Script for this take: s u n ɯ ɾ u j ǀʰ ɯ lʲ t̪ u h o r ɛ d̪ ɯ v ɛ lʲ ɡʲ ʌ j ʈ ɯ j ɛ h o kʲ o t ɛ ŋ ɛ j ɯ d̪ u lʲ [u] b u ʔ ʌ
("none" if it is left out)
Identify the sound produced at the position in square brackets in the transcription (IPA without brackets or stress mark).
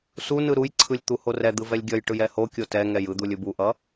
ɯ